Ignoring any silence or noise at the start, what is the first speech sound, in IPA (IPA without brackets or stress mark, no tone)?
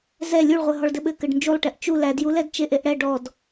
z